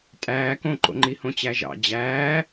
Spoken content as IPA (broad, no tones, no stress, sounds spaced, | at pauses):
tʼ æː k õ ǃ o̰ ŋ͡ǃ i h õ t͡ɕ æ ʒ ɑ̰ d͡ʑ æː